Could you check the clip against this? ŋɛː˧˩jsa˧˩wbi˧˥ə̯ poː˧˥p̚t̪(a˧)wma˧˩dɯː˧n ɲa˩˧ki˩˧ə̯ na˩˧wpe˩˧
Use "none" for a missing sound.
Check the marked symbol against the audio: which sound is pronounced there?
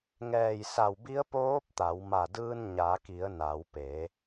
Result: a˩˧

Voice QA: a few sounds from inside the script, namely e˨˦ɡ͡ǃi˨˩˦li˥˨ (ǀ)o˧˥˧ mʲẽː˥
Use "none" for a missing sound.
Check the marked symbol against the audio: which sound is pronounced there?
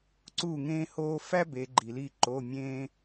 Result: ǃ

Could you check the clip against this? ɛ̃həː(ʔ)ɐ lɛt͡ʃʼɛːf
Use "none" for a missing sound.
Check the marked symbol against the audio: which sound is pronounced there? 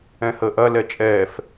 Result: ʔ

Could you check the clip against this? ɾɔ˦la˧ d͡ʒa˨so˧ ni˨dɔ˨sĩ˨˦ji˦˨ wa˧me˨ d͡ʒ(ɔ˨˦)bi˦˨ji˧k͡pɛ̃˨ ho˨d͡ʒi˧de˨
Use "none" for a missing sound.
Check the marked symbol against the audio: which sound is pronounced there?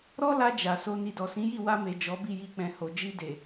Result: ɔ˨˦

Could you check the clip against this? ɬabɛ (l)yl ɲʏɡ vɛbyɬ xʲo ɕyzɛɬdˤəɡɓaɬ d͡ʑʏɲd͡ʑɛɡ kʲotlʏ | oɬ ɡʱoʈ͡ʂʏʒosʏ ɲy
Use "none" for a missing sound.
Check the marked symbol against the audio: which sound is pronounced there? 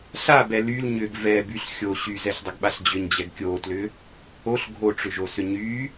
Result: l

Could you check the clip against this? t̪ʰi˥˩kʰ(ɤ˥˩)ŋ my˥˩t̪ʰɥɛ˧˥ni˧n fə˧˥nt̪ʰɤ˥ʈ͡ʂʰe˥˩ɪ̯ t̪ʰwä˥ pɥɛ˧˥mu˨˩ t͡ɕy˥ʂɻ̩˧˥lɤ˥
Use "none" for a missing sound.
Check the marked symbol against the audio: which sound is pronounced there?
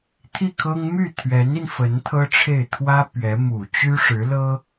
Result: ɤ˥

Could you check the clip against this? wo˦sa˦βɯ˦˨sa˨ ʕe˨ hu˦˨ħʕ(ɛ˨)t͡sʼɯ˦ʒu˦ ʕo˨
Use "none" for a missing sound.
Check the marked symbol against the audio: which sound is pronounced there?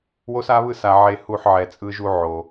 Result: ɛ˨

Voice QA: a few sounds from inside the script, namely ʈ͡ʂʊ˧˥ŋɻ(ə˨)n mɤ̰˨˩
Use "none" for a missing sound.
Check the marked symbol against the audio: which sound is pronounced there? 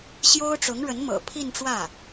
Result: ə˧˥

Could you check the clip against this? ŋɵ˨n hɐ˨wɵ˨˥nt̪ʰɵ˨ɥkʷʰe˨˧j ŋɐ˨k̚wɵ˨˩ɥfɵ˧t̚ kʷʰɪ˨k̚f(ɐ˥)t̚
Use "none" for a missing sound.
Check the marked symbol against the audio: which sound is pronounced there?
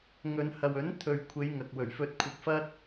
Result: ɐ˥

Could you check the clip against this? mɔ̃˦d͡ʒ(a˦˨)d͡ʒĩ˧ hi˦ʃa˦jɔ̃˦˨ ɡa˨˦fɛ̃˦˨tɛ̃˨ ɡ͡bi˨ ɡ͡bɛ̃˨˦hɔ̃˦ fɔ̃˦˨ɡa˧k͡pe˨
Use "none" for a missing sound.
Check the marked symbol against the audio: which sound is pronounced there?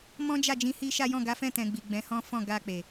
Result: a˦˨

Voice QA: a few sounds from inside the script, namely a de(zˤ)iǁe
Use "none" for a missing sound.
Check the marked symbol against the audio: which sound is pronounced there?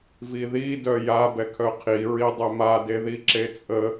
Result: ð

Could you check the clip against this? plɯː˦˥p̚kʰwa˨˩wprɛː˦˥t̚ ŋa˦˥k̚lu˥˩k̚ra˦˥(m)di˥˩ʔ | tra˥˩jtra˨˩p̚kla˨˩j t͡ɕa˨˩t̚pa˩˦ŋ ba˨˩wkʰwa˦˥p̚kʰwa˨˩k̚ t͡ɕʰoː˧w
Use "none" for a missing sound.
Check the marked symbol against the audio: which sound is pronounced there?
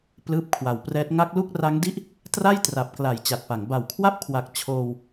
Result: ŋ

